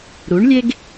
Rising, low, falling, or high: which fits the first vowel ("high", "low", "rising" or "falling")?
rising